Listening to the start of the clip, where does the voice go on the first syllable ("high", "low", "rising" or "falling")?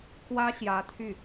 high